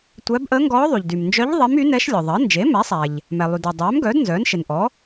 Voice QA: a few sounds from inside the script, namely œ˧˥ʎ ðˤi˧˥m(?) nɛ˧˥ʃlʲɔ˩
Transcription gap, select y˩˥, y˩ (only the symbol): y˩˥